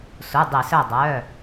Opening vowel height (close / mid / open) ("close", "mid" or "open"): close